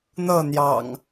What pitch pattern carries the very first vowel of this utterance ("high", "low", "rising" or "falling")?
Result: falling